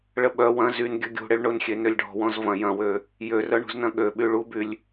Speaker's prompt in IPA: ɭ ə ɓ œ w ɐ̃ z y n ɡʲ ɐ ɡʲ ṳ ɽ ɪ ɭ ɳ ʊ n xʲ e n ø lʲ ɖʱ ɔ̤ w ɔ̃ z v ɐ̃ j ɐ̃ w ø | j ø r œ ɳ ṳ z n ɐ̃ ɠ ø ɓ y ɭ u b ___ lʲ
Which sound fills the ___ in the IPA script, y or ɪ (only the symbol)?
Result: y